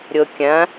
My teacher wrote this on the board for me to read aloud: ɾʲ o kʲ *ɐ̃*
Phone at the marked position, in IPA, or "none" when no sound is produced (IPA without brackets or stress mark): ɐ̃